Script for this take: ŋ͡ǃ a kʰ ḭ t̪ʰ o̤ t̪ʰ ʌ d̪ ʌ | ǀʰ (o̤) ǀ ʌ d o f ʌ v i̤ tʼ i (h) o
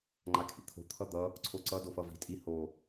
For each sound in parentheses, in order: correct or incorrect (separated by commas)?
incorrect, correct